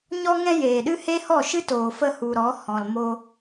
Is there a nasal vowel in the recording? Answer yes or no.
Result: yes